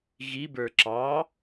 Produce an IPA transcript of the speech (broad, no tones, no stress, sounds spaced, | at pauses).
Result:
ɣ i b ə˞ ǁ ɑ